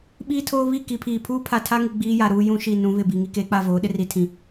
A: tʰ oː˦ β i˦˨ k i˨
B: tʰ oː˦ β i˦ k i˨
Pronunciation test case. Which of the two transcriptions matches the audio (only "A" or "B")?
A